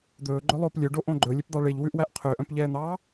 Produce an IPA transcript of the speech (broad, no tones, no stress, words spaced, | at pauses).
d̪ɵːɡ͡ǃɵlˠoːp lʲøɖoʔõ ɡ͡ǃɵlʲepd̪ɑ ɭeʎwʉʔwæʔ qʰøʔœ̃pʎɛːn̪ɑː